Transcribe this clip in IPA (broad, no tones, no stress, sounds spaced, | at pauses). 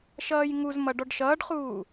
ʃ ʌː j ŋ u z m ʌ ɖ ɔ ɖ ʃ ʌː ɖ χ uː